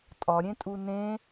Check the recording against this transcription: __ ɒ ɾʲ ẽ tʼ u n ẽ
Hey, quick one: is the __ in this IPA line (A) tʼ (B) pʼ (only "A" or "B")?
A